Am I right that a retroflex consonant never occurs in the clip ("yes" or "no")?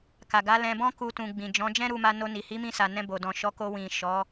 yes